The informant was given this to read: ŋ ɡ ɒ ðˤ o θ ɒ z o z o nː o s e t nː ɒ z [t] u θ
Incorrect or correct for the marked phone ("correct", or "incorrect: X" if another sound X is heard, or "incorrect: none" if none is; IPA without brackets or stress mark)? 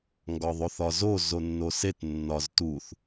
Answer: correct